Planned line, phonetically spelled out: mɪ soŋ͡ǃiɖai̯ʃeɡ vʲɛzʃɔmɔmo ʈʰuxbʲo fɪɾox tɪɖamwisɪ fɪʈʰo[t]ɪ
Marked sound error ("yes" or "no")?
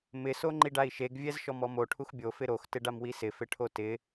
no